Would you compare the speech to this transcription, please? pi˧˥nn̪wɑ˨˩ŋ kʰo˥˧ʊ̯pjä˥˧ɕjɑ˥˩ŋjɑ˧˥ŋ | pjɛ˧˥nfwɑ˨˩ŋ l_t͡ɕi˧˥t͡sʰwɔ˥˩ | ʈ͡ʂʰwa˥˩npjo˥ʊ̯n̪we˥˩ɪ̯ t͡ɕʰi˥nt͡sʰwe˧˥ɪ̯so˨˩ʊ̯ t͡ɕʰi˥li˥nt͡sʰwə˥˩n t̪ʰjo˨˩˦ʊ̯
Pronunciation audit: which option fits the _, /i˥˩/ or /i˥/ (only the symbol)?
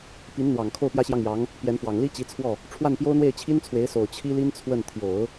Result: i˥